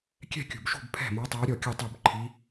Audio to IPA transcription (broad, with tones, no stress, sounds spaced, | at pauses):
kʲ ɛ̤˥˩ kʲ ṳ˨˩ b ʃ ṳ˥˩ b pʰ ɛ̤˥˩ m ɔ˧˥ tˤ a˧˥ ɾʲ ɔ˥˩ kʲ ɨ˥˩ tˤ u˥˩ b ǃʰ i˧˥